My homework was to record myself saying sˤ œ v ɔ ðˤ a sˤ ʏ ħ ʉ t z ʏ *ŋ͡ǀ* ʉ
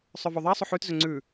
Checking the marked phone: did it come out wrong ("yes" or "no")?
no